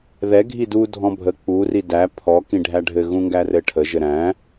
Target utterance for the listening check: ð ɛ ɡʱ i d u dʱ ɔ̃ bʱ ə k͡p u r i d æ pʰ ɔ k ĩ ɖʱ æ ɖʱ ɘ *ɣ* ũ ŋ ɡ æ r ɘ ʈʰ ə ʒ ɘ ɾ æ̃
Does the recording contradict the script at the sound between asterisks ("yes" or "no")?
no